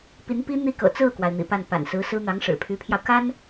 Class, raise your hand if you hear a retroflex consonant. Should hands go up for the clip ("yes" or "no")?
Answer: yes